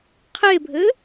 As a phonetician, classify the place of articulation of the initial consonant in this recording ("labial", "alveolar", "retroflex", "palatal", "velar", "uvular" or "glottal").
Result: uvular